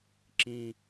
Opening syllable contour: low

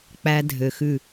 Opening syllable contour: high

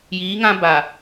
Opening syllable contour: rising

